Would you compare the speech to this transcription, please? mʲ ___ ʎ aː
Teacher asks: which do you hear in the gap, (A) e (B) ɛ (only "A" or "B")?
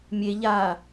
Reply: A